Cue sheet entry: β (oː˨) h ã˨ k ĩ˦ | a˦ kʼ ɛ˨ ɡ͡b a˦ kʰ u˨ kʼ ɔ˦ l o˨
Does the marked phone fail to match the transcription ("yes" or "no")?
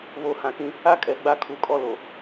yes